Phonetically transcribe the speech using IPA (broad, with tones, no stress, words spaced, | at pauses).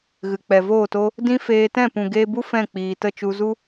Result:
ɣɨ˨ k͡pɛ˨voː˦˨to˦ | dĩ˦ feː˧tɛ̃˦˨ pũ˨ɡeː˧bu˦ fɛ̃˦˨k͡piː˨tə˦˨ t͡ʃu˧zu˦